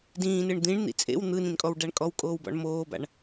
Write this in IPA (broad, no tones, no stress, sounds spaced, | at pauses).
d ĩː n ɯ ɳ d̪ ĩ ɳ n̪ ḭ t͡sʼ ḛ w n̪ ɯ n ĩ n kʼ ɔ w ɖ a ɳ kʼ ɔ w kʼ oː w b ɔ̰ ɳ m oː b a̰ ɳ